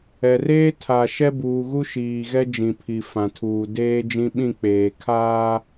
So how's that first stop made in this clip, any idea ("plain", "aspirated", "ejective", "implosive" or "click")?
aspirated